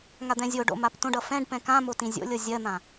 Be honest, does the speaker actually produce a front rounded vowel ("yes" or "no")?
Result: no